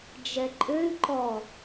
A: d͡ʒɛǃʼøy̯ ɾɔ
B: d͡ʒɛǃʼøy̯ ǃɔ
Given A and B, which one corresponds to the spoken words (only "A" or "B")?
B